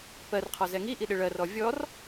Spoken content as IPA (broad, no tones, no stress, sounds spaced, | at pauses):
p ɜ r qʰ ɔ z ɛ ŋ i ʔ i ɗ ɪ ɭ ɜ r ɔ vʲ ɔ r